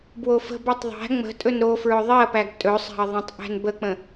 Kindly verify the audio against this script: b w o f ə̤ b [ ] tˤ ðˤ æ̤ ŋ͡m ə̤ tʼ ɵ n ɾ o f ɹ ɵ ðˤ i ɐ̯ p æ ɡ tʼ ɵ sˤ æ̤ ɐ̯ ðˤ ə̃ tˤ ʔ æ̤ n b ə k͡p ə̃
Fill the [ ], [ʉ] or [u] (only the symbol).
ʉ